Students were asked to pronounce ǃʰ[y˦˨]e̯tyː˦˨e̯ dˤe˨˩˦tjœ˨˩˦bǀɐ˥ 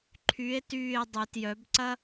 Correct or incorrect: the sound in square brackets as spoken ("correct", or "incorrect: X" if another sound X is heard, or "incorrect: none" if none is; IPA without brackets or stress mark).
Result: incorrect: y˨˥